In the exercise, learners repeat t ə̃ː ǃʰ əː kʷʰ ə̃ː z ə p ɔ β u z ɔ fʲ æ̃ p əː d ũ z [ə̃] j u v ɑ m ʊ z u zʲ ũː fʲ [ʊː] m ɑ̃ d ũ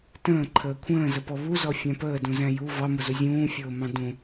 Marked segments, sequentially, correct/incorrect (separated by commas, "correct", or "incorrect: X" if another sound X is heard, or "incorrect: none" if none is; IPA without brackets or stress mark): incorrect: æ̃, correct